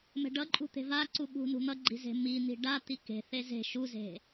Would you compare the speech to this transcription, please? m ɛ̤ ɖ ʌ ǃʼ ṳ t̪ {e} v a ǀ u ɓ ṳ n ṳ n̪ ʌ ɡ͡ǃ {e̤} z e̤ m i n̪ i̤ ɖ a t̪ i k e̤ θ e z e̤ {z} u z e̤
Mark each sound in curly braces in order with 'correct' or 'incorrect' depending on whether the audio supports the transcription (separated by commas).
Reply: incorrect, incorrect, incorrect